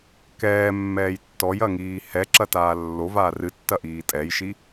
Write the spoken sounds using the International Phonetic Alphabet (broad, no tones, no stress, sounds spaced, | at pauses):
k ɛː mː ɛː j tː ɔ j ɐ ŋ iː h ɛ ǁ ɐ t aː lː o v aː r ɨ tː ɐ ʔ iː tʼ ɛ j ʃ i